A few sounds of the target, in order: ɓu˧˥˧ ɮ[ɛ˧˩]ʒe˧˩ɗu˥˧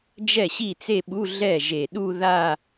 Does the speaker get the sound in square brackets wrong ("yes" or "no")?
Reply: yes